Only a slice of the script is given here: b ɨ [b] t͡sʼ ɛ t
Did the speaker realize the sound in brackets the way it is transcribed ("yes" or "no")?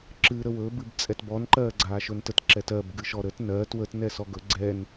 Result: yes